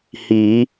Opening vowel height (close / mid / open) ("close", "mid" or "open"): close